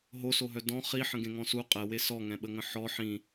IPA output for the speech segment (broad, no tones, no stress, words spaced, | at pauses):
ɦosoɦœ dɔ̃ χi ħə̃ɡẽŋɔ̃su qʼɛwe sɔŋɛ̃ɓəŋə̃ ħɔ ħĩ